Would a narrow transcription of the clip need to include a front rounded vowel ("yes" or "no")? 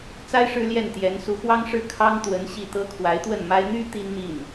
yes